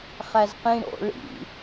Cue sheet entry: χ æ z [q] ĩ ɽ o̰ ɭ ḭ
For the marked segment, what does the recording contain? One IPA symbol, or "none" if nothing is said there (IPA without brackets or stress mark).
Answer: q